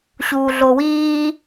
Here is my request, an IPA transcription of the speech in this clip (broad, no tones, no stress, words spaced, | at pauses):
ɕuːɮowiː